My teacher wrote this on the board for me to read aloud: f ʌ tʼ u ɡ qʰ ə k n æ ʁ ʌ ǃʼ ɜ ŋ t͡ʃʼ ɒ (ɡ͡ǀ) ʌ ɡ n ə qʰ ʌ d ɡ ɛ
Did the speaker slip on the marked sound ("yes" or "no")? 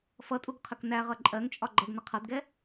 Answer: yes